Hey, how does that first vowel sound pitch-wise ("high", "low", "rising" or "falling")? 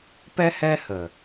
high